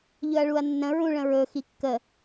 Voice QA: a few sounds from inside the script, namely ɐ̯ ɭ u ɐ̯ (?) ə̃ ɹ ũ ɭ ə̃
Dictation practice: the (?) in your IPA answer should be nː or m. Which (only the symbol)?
nː